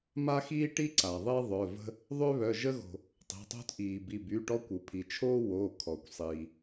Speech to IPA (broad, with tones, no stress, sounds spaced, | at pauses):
m a˥ x iː˥ ʈ i˥ ǀ a˩ ðˤ e˥ ðˤ œ˩˧˩ v ə̤˥ | ðˤ ø˥ β œ˩˧˩ ʒ ə˥ ɣ o̤˩ | tˤ e̤˩˧˩ tˤ o̤˥ t ʔ iː˩ b i˩˧˩ b y˩˧˩ ʈ ɔ˥ kʷ u˩ pʰ i˩ t͡ʃʰ oː˥ w oː˩˧˩ kʰ ɔ˩ kʷ sˤ iː˩